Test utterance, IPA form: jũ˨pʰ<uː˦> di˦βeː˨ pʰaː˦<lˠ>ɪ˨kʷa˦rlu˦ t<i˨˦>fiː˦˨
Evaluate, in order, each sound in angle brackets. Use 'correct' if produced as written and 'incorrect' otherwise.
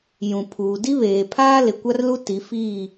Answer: incorrect: uː˨, incorrect: l, correct

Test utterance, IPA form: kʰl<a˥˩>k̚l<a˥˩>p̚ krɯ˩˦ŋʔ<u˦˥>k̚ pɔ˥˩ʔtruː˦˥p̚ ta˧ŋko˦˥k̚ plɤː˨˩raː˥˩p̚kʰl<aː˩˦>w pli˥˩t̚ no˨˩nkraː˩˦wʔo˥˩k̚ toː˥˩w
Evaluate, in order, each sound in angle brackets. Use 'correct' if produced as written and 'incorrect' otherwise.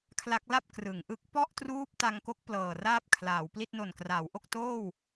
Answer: incorrect: a˦˥, correct, incorrect: ɯ˦˥, correct

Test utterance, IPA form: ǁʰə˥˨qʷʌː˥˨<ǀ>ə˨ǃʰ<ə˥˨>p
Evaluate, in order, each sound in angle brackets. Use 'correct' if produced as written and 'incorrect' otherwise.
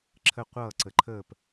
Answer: correct, incorrect: əː˥˨

